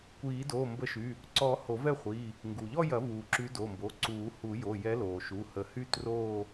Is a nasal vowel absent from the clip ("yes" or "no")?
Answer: yes